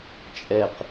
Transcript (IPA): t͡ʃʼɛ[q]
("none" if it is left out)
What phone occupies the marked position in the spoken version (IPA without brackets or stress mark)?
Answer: q